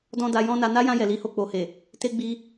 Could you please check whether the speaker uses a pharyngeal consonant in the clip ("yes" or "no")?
no